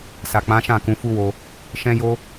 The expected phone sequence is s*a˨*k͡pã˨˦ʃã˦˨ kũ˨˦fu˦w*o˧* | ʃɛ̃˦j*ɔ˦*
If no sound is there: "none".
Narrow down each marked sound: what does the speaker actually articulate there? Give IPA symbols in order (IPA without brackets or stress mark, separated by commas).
a˨, o˧, o˦